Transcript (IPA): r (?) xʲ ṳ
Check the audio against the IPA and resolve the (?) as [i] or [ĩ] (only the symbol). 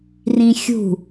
ĩ